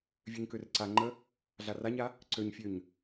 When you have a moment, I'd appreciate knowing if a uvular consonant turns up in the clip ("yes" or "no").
no